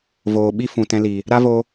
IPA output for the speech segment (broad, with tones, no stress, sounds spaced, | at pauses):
v oː˨ ɓ i˦ f ũ˨ t ɛ̃˧ l i˨ | ɾ a˦ v o˧